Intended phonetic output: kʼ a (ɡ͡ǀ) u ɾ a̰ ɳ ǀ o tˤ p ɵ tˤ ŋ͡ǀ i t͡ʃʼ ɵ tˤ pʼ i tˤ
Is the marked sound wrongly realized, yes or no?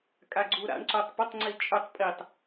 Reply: no